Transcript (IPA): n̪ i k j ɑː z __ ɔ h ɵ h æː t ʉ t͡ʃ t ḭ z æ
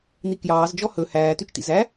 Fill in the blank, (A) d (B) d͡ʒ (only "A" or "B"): B